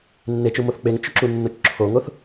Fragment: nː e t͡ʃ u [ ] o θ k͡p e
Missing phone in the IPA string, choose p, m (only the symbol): m